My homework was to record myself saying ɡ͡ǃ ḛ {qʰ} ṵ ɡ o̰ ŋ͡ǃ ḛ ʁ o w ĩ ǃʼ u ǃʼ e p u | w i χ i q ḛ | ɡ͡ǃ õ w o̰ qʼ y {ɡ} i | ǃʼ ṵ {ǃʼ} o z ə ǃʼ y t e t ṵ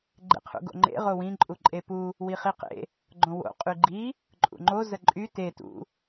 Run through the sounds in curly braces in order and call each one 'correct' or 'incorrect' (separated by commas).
correct, incorrect, incorrect